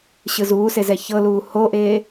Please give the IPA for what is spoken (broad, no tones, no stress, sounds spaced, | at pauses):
ɕ ɯ z uː s e z ɛ ç ɤ l uː h o ʔ eː